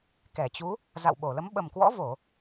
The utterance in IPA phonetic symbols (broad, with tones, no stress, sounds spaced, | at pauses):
k ɛ˧˩ t͡ɕ u˨˦ | z a̰˧˨ w ɓ o˧˩ l ə˨˦ m ɓ ə˨˩ m k w ɔ̰˧˥ v o˧˩˨